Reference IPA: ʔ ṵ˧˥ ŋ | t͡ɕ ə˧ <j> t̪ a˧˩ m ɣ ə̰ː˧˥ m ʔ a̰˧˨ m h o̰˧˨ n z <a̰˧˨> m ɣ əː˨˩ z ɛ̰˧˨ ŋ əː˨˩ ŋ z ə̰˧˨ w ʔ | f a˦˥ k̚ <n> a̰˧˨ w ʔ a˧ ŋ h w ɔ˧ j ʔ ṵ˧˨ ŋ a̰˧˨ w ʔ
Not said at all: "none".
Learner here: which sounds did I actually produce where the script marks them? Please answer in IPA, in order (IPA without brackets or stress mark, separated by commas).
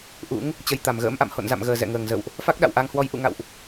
j, a̰˧˨, ɗ